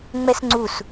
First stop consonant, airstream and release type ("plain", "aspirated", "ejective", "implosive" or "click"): click